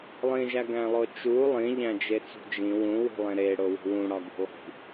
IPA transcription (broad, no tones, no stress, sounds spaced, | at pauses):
lˠ ĩ ʒ æ ɡ æ̃ lˠ o t͡ʃ u lˠ ĩ ʎ æ̃ d͡ʒ e t͡s ṳ d͡ʒ ĩ w ũ w i̤ lˠ ẽ ɾ e ɽ o w ṳ w ũ ɽ ɒ ɡ ṳ lˠ i̤